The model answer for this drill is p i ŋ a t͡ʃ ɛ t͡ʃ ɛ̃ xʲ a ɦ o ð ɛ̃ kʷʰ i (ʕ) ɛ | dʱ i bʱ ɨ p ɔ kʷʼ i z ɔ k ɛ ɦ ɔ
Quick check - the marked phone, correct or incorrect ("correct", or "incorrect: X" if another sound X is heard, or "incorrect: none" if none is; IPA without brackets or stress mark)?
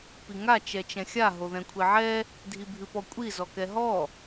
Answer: correct